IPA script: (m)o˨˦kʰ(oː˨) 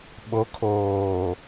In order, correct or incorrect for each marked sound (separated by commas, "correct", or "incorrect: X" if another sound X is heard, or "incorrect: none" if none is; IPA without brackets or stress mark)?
incorrect: ɓ, correct